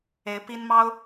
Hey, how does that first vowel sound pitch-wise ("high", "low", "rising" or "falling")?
rising